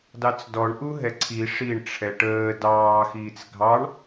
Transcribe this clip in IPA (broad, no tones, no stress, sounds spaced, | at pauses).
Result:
d ɑ t͡s d ɔ ɳ ʔ u ɦ ɛ ǀʰ i ʂ i ɳ ʈ͡ʂʰ ɛ ʈ əː d ɑː x iː t͡s ɡʱ ɑ ɳ